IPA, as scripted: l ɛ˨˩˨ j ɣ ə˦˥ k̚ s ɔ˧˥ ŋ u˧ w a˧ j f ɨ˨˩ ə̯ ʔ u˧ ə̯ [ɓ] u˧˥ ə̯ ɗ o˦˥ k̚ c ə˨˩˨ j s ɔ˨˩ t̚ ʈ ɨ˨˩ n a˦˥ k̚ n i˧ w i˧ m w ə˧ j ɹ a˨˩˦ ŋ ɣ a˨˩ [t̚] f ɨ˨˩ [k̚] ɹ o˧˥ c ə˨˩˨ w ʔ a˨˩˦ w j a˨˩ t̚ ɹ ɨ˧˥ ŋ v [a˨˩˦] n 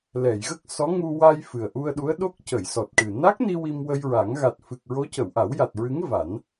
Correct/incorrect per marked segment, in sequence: incorrect: ɗ, correct, correct, correct

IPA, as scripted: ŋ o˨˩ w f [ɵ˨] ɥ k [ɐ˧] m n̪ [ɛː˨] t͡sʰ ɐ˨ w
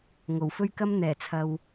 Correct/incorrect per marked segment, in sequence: incorrect: ɵ˥, incorrect: ɐ˥, incorrect: ɛː˨˩

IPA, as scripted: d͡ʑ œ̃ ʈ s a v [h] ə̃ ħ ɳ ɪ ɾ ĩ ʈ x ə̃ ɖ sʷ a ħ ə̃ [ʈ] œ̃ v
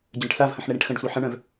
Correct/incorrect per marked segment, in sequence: correct, incorrect: ɳ

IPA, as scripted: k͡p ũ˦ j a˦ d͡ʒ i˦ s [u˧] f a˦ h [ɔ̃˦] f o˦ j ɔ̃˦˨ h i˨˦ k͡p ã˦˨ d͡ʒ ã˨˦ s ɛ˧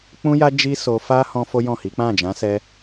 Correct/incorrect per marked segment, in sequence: incorrect: o˧, correct

